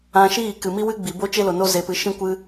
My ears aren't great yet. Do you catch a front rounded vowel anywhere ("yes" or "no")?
no